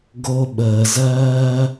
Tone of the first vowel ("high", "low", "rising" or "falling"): high